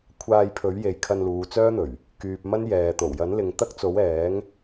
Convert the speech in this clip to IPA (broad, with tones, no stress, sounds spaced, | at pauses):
kʷʰ aː˧ j pʰ ɵ˨˥ ɥ j e˨ j kʰ ɐ˧ n l uː˨˧ t͡s œː˥ n̪ ɵ˨˩ ɥ | k yː˨ p̚ m ɐ˥ n j ɛː˨ t̪ o˨˩ w j ɐ˨˥ n l ɪ˨ ŋ t̪ ɐ˥ k̚ t͡s o˨˥ w ɛː˨˥ ŋ